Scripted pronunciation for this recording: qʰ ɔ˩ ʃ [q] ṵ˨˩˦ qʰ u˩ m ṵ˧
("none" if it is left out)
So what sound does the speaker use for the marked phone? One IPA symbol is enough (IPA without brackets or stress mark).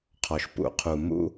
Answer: p